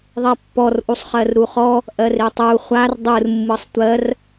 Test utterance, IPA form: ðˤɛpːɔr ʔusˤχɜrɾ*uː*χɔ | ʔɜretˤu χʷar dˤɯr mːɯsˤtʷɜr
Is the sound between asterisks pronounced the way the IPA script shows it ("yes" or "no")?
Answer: no